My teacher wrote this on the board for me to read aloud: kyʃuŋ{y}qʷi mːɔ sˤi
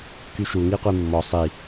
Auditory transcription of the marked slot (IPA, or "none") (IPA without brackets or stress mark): i